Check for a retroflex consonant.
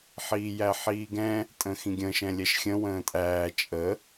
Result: absent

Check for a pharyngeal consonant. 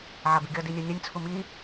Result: present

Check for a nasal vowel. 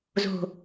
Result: absent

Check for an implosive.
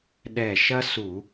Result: present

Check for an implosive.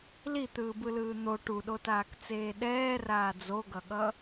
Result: present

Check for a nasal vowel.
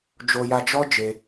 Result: absent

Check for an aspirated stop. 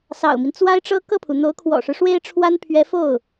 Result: present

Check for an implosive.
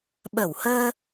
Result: present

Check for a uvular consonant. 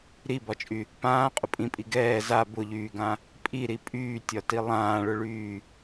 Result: present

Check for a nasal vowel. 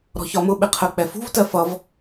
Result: absent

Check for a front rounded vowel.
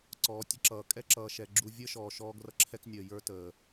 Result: absent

